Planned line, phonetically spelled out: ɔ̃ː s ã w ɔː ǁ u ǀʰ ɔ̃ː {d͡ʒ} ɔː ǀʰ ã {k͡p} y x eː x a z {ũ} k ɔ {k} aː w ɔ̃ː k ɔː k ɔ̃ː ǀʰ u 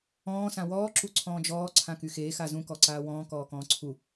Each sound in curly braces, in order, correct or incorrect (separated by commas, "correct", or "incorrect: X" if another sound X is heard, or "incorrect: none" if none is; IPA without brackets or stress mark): correct, incorrect: k, correct, incorrect: ǀ